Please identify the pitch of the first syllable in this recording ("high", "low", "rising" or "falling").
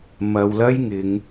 low